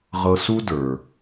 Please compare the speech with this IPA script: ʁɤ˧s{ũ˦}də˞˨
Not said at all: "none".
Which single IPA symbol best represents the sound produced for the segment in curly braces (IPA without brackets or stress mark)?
u˦